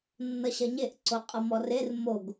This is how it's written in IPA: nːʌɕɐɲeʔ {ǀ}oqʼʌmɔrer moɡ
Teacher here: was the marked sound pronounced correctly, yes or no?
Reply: yes